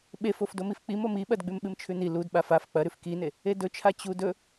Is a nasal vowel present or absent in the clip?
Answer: absent